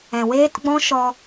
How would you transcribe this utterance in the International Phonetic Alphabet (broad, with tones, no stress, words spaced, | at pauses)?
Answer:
ɛ̃˨weː˦tɡ͡bɔ̃˦ ʃɔ˧